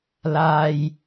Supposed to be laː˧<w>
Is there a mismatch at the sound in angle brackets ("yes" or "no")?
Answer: yes